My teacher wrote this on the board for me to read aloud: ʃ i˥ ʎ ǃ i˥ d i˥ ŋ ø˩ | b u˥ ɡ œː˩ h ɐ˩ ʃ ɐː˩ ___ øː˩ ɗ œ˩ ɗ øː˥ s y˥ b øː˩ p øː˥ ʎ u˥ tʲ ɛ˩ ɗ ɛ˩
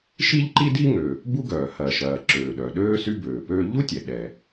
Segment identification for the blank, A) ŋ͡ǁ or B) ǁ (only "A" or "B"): B